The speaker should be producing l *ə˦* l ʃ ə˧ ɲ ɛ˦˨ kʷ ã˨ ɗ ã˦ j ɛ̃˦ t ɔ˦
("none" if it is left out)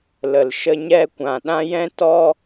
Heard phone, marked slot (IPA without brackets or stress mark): ə˨